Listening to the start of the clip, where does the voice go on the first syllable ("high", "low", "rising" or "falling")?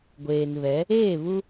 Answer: low